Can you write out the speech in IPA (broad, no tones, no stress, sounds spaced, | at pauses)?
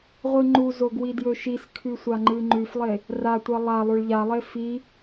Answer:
ʁʷ ɨ ŋ͡ǃ u z o ɡ w i d j ɵ ʃ i s kʰ ʉ sʷ a ŋ͡ǃ ɨ ŋ͡ǃ ʉ f lˠ e | r a tʷ ɐ lˠ a lˠ o ɭ ʎ a lˠ e f i